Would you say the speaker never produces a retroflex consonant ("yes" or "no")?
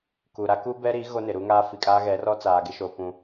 yes